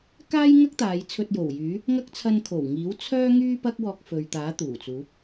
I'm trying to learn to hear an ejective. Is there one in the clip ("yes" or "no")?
no